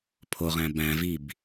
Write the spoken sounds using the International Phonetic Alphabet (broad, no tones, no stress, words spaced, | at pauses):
pʰoʁæ̃ bæ̃vib